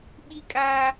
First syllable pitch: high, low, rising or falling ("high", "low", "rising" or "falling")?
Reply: high